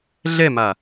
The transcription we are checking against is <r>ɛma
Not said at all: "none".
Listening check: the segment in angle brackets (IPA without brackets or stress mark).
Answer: ɮ